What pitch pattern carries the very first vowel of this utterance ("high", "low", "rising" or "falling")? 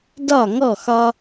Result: falling